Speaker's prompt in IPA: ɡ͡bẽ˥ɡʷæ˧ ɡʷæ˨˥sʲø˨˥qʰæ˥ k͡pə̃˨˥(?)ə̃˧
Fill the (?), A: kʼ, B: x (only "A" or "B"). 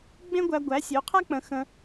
B